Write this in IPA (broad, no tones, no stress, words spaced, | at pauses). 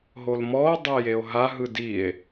ɦolmɔo̯ dˤejeo̯ɦa ɦɯdie̯